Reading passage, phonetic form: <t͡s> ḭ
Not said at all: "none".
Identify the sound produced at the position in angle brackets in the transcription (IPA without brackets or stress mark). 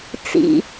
t͡s